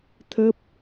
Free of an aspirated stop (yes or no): no